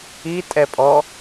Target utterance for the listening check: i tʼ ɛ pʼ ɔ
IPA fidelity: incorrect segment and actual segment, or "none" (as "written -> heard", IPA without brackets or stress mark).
none